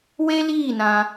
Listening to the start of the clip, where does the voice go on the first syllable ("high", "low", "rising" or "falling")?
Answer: high